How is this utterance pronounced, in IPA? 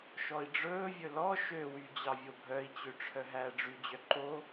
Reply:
ʃɔi̯ɖ͡ʐɵːvʲɵ lɔ ʃøwy d͡ʑɑvʲobʱœi̯t͡ɕø ʈ͡ʂʰœɦæːɖ͡ʐyd͡ʑœ ǃo

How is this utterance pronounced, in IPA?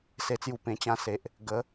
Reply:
se˧t͡sju˧ pẽ˧t͡ɕã˦se˨ʔ | ɡə˨˦

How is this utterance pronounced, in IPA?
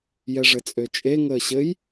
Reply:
jɛʐɘt͡sʼøt͡ʃʼe ŋəːɕɘj

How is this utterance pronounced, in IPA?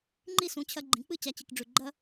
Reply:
ŋ͡ǃi˥˩sũ˧t͡ɕʰɐ˧ ɡ͡ǃĩ˩˥k͡pɨ˥˩ t͡ɕa˥t͡ɕi˧kɖ͡ʐʉ˧ ɡ͡ǃɐ˥

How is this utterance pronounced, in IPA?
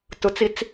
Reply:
tʊt͡sit͡s

